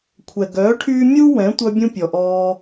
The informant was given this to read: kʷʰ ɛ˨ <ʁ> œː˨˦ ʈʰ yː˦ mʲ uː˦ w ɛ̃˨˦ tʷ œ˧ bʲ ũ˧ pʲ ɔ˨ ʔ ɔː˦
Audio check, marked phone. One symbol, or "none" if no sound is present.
ɡ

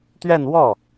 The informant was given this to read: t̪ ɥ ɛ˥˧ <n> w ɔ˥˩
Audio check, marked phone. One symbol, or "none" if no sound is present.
n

